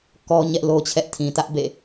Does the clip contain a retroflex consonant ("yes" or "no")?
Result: no